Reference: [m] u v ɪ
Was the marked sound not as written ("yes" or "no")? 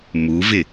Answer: no